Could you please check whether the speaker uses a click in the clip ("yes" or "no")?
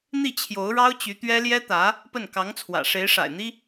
no